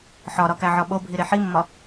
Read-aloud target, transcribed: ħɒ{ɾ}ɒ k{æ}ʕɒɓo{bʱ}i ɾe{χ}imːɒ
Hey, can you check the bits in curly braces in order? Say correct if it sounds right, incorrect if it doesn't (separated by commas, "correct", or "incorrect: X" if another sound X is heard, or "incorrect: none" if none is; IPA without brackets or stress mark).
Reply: correct, correct, correct, incorrect: ħ